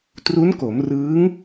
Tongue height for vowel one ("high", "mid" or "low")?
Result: high